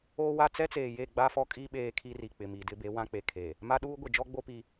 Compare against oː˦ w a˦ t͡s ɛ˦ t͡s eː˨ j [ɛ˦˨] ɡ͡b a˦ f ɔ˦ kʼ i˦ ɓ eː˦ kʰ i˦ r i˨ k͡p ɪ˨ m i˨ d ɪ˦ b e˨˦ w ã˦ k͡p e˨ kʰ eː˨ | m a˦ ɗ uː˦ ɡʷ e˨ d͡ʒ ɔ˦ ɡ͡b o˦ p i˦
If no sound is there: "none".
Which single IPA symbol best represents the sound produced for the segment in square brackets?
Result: e˦˨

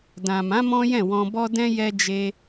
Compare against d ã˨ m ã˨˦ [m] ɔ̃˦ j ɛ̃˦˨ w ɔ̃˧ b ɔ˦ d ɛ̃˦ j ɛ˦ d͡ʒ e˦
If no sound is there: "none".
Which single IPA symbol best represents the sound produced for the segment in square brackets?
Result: m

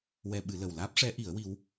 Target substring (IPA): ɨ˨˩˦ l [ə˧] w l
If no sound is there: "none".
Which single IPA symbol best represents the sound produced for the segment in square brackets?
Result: ə˨˩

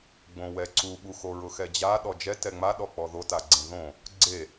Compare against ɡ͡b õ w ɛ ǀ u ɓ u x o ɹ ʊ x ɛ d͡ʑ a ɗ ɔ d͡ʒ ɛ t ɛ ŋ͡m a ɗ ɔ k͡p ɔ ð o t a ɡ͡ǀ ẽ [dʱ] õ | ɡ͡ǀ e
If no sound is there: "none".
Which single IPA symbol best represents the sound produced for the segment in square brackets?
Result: ð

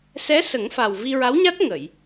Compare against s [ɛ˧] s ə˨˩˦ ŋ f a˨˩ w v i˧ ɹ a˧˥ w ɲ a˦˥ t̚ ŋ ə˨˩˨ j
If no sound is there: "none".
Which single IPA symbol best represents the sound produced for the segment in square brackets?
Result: ɛ˧˥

